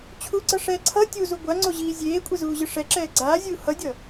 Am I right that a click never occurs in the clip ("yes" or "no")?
no